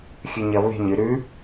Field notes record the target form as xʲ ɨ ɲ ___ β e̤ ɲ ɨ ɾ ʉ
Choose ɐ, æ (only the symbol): ɐ